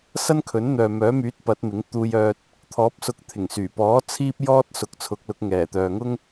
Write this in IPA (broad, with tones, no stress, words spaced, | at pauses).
sɐ˥nkʰɵ˨˥nn̪œː˨ mœː˨˥ myː˨˥t̚ pɐ˨˥t̚mɪ˨˥ŋ t̪uː˧jœː˧t̚ | t̪ʰɔː˨˥p̚sʊ˧k̚ t̪ʰɪ˨˩ŋsyː˨˩pɔː˨˥ t͡sʰiː˥p̚jɔː˥t̚ sʊ˨˥k̚t͡sʰʊ˨˥k̚lʊ˨˥k̚ ŋɛː˨˩t̪œː˨ŋʊ˥ŋ